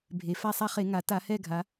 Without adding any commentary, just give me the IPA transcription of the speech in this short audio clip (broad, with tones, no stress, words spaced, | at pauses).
bʱe˨˩ fa˦˨sˤa˦˨χe˧˩˧ ŋa˩˧ta˧˩˧hɛ˦˨ɡʱa˩˧